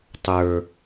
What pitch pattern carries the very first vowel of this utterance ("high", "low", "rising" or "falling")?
low